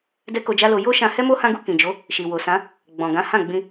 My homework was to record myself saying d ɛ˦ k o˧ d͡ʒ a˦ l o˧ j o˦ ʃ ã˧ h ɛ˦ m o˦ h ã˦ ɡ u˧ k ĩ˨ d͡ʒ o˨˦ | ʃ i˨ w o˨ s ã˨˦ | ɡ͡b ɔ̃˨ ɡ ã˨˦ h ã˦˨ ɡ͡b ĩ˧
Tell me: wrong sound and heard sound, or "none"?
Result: none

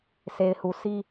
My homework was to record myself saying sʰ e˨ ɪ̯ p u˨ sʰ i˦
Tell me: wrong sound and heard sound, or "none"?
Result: p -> h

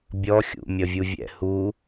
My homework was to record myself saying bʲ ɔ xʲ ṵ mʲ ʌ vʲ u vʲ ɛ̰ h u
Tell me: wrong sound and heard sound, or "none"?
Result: none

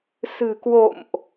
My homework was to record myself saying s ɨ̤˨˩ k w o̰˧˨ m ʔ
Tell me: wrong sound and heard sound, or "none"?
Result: none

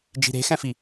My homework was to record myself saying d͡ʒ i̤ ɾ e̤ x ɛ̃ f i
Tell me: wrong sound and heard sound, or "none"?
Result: none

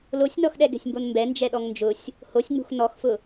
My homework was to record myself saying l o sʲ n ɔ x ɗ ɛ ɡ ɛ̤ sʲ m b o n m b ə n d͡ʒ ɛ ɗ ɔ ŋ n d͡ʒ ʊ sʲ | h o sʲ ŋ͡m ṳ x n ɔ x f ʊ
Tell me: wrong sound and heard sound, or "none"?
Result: ə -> ɛ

